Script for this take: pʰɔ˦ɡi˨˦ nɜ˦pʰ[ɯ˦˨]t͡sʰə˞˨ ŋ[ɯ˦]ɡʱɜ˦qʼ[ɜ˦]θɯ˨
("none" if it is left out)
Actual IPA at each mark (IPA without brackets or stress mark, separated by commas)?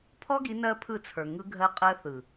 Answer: ɯ˦˨, ɯ˦, ɜ˦